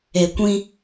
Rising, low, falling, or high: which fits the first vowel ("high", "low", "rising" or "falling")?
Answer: low